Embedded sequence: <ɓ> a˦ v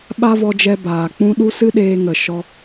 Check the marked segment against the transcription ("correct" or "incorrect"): correct